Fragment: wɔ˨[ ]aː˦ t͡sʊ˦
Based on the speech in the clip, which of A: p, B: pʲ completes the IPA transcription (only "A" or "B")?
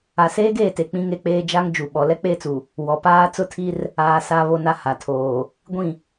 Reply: A